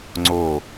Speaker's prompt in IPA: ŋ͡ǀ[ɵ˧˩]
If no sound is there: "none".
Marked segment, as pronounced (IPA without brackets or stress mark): o˧˩